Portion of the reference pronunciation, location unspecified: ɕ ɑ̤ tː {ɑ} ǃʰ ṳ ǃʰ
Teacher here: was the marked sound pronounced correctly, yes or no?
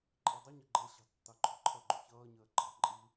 yes